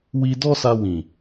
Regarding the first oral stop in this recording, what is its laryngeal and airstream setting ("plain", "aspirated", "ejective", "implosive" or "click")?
plain